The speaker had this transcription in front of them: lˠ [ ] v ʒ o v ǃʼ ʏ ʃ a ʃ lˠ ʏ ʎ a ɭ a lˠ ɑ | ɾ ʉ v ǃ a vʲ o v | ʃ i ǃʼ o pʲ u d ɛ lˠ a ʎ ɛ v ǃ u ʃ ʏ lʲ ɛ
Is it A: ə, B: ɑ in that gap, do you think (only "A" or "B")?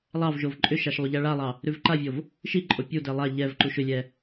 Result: B